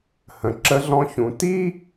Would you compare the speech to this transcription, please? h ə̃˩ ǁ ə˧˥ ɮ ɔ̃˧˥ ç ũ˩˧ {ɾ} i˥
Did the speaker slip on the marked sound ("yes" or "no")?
yes